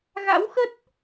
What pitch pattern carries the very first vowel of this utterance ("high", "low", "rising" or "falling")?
rising